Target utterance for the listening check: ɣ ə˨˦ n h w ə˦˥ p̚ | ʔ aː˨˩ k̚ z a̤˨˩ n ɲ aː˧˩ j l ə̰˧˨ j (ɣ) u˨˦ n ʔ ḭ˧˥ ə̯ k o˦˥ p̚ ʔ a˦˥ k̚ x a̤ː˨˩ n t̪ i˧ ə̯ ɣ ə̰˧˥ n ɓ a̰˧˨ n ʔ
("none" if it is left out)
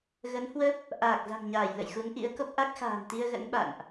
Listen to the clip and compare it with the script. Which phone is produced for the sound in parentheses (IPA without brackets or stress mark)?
x